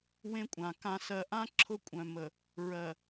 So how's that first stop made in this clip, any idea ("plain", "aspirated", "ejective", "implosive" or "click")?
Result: ejective